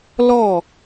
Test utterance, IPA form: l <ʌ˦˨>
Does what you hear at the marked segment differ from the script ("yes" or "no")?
yes